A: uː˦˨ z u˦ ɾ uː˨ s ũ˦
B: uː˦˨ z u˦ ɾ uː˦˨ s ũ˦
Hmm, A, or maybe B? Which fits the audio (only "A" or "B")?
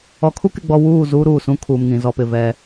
A